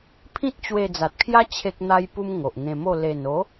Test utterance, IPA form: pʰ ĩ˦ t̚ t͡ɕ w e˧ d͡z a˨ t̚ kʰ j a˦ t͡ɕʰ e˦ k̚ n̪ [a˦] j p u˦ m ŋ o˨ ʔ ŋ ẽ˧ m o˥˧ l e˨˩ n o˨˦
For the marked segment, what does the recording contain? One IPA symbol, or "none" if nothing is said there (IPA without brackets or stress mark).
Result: a˦